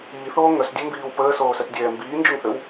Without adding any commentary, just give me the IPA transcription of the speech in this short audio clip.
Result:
iː θ oː ŋ œ s dʲ o m b iː w p əː s oː s œ t dʲ ɛː m b iː n d͡ʒ o ŋ θ ø w

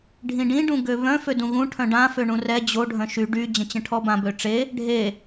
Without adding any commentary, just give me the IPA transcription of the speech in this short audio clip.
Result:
ɖʱ ĩ ɖ ĩ ɖ ũ ɡ ø β œ̃ f ø d ũ ɣ ũ ʈʰ œ̃ ɖ ã f ø ɳ ũ r ɛ d͡ʑ o ɖʱ œ̃ ʃ y ɖ y d͡ʑ ə̃ t͡ɕ ə̃ ʈʰ ɔ b ã b ø ʈ͡ʂ e | ɖʱ e

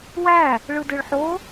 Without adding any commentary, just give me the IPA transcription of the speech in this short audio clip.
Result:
w æ | ɭ ɯ d ɯ ɭ ħ o

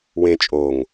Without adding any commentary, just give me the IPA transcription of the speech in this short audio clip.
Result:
w ẽ t͡ʃʼ o ŋ

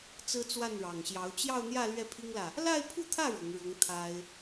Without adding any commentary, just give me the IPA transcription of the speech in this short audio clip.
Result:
t͡s ɹ̩˥ t͡s w a˥˩ n ɻ ɑ˨˩ ŋ ɕ j ɑ˧˥ ʊ̯ t͡ɕ j ɑ˥˧ ʊ̯ n̪ j ä˥˧ l ɥ ɛ˥˩ pʰ i˥ ŋ l ä˨ | l a˥˧ ɪ̯ pʰ u˥˧ t̪ʰ ä˥˩ ɻ ʊ˧˥ ŋ ɻ ʊ˧˥ ŋ t̪ʰ a˥ ɪ̯

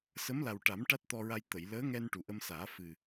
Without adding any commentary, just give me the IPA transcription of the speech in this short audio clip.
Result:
s ə˧˥ m l a˨˩ w ʈ a˨˩˦ m ʈ a˦˥ t̚ t̪ ɔ˧ ɹ a˧ j t̪ ə˨˩˨ j l əː˧˥ ŋ ɛ˧ n ʈ u˨˩ ʔ ə˧ m s aː˨˩˦ f ɨ˨˩

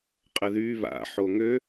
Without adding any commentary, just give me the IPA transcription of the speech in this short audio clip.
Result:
qʼ ə ð y β a̰ ħ o ŋ ø

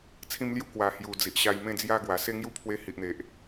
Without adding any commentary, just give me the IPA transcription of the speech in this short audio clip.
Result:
t͡sʰ ĩ˧ m l j u˧ k w a˨˩ h j u˨˩ d͡z i˨ ʔ ɕ a˧ j m ẽ˥˧ d͡z j a˥˧ ɡ w a˨˩ s e˥˧ ŋ j u˦ pʰ w e˧ h i˨ ʔ n̪ e˨ ʔ

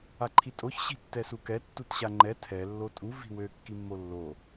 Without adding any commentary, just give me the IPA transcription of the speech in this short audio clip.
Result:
a ǃʰ i tʼ o ç ɕ i̤ tː ɛ s u k ɛ tː u t ɕ a ŋ͡ǃ ɛ tʰ ɛ lː o tʼ u v i̤ w ø kː i mː o lː o

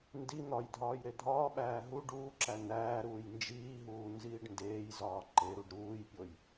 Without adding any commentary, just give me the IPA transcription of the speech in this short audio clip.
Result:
n d i n̪ ɒ j dʱ ɒː j ɾ e dʱ ɒː ɓ æː ɦ u ɖ uː ǁ æ n̪ æː ɾ uː j n d͡ʒ iː ɦ uː n z iː ɖ n d eː j z ɒː ǃ e ɾ u ɖ ɾ uː j pʲ o j

